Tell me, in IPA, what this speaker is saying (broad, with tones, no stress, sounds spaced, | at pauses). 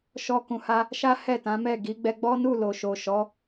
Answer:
ʃ ɔ˧ k ũ˨ h a˧ | ʃ a˦ h ɛ˦˨ t ã˨˦ m ɛ˦˨ ɡ i˨˦ ɡ͡b ɛ˧ ɡ͡b ɔ˦ n u˦˨ l o˨ ʃ o˨ ʃ ɔ˨˦